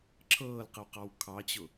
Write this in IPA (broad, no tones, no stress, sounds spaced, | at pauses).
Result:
ǁʰ ɤː l q ə w q ɑ w kʰ ɑ t͡ɕ ʊ